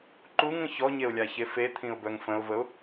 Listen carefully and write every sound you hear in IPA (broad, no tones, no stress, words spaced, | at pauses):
ǃuŋə̃ çɔɲeʊ̯lʲaçe fet̪ʰĩʊ̯bœŋ fə̃ʊ̯vəʊ̯